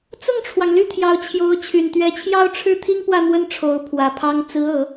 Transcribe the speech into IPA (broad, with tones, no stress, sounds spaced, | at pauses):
t͡s ʊ˥˩ ŋ ʈ͡ʂʰ w ɑ˩ ŋ l y˥˩ t̪ʰ j ɑ˧˥ ʊ̯ t͡ɕʰ j o˧˥ ʊ̯ t͡ɕʰ y˨˩ n t̪ ɥ ɛ˧˥ t͡ɕʰ j ɑ˥ ʊ̯ ʈ͡ʂʰ ɻ̩˥ t̪ʰ i˥ ŋ p w ä˥˧ n̪ w ə˥˩ n ʈ͡ʂʰ o˧˥ ʊ̯ pʰ w ä˨˩ pʰ ɑ˥ ŋ t͡s ɹ̩˧˥ ɤ˨˩˦